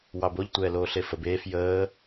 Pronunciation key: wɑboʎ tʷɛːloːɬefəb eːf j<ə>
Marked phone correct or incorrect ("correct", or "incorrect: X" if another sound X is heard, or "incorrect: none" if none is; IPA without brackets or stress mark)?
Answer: incorrect: əː